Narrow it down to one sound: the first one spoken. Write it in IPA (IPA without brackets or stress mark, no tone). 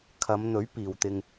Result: kʰ